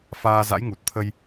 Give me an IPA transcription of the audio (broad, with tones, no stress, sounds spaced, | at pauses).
f aː˧ z a̰˧˥ j ŋ u˨˩ t̚ t̪ʰ ə˧ j